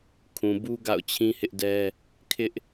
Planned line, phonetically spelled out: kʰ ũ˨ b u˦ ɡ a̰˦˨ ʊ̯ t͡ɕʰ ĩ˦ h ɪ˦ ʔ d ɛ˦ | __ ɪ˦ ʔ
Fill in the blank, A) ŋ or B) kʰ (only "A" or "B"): B